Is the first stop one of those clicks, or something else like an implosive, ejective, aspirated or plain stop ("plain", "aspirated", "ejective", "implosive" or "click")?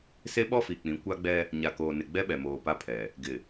implosive